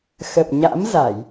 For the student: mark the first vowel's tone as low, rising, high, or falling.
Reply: low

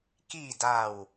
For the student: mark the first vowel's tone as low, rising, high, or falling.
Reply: low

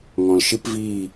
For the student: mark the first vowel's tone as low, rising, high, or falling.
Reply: low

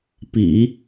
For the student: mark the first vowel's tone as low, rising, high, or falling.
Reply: low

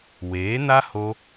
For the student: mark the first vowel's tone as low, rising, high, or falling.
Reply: rising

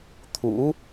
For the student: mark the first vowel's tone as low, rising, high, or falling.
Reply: rising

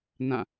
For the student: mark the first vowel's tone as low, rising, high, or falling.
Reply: falling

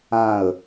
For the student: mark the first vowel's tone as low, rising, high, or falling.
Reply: falling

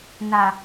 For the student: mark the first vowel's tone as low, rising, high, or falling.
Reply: low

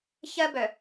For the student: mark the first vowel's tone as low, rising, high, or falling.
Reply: high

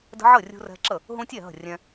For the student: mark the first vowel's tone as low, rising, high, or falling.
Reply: high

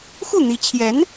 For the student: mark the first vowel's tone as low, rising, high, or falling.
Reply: falling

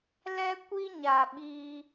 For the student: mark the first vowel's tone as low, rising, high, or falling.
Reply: high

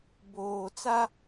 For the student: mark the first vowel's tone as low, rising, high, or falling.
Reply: low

